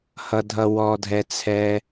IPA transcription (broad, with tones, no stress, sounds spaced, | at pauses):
h ʌ˨ dʱ ʌ˨ w ɔ˨ dʱ ɛ˨ t͡sʰ ɛ˦